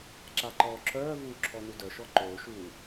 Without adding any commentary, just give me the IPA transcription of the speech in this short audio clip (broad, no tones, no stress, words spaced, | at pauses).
ǁaǃɔːǁœːvuː ǁʰɔnudœʃɔ ǃoːʃuː